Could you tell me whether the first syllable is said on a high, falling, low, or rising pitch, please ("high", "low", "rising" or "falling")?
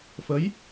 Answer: rising